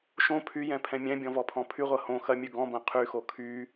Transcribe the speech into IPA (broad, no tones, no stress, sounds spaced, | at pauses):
ʃ õ pʰ y j ɛ̃ pʰ ɛ̃ mʲ ɛ̃ bʲ ɔ̃ v ɔ pʰ ɔ̃ pʰ y ʁʷ ɐ h õ x ɐ mʲ ʉ ɡ ɔ̃ b ɐ̃ qʰ y x o kʰ y